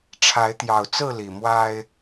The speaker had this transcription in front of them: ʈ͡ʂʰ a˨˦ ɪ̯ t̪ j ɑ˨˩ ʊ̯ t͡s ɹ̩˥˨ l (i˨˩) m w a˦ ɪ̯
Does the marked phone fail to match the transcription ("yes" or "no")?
no